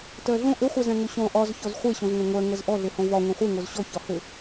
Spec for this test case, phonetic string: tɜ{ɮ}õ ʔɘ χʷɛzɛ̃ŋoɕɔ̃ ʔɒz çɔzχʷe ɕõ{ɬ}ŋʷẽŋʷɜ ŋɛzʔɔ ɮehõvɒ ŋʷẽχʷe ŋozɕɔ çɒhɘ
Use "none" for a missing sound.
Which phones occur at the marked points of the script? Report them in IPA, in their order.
ɮ, z

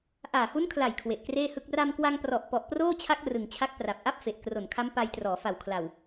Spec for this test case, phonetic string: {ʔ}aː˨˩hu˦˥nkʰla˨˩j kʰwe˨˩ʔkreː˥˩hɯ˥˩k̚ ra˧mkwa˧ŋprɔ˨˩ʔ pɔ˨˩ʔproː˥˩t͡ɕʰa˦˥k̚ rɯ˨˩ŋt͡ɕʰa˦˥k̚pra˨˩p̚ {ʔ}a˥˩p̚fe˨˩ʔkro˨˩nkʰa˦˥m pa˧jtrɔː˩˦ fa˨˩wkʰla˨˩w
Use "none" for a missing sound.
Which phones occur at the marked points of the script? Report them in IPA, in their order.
ʔ, ʔ

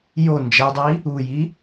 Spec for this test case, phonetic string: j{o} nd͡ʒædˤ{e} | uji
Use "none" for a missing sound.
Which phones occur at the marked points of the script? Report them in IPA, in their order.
o, i

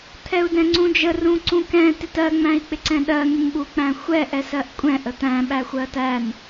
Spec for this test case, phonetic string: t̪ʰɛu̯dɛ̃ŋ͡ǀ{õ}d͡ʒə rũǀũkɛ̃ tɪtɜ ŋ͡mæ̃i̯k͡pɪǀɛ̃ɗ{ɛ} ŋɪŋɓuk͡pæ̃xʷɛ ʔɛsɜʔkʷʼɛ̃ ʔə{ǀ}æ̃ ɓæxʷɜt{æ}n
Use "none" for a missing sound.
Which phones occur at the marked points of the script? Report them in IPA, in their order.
ũ, ɜ, t̪, æ

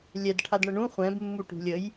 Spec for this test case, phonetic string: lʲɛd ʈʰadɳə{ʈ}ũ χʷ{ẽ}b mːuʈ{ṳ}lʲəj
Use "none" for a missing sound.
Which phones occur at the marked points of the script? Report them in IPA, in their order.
ɳ, ɛ̃, ṳ

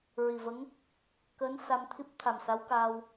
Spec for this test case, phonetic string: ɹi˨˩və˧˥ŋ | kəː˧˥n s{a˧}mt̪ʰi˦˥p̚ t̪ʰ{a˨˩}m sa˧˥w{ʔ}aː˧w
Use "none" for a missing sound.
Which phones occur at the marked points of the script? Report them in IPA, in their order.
a˧, a˨˩, k

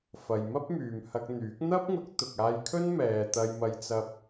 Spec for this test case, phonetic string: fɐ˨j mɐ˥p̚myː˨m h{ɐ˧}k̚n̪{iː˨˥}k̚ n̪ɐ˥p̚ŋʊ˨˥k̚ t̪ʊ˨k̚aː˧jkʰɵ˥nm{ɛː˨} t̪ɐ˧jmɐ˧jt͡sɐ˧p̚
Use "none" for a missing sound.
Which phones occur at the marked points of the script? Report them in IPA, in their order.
ɐ˧, yː˨˥, ɛː˨

